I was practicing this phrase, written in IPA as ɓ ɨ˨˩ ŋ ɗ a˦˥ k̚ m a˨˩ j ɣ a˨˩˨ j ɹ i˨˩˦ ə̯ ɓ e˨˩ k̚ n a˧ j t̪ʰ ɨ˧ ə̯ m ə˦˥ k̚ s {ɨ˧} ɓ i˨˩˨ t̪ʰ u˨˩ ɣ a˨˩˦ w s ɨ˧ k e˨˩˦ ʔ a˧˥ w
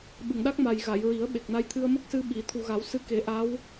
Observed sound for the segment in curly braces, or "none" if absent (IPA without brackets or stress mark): ɨ˧